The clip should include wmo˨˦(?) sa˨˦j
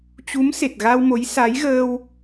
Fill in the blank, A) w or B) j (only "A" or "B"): B